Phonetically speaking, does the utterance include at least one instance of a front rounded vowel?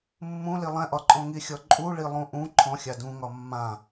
no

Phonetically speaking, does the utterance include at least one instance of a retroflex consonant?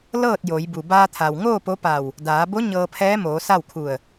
no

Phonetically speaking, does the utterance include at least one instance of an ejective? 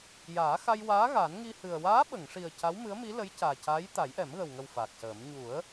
no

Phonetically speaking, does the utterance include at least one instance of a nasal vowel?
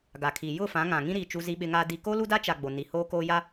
yes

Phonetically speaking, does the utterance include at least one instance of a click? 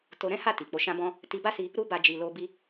no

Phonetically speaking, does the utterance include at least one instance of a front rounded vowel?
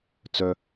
yes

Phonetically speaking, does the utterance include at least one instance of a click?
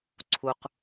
yes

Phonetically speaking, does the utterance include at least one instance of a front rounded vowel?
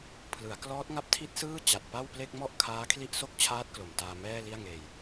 no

